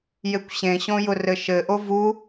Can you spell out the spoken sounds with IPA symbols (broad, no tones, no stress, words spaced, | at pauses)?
jekʷɕẽɕõ jʊrɘʃɘʔo vu